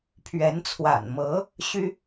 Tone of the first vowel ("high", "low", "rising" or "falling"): rising